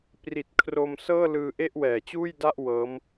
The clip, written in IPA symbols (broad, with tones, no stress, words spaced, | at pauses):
pri˨˩t̚kʰro˧msɤː˥˩lɯː˧ ʔe˥˩ʔwɛː˨˩t͡ɕuː˥˩jda˥˩ʔ wɤː˦˥m